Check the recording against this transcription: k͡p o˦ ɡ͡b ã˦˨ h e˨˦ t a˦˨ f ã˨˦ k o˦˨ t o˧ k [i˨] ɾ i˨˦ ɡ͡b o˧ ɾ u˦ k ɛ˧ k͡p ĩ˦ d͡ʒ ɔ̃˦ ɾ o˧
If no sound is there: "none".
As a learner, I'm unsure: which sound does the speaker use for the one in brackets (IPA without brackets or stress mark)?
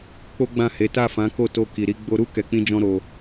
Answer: i˨